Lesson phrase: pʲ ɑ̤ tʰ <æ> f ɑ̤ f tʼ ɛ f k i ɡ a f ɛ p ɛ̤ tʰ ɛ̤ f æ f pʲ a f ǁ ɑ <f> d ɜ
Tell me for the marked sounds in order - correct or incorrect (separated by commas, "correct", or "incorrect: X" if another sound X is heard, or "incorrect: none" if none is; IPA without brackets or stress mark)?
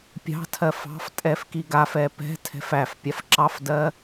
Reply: incorrect: ɜ, correct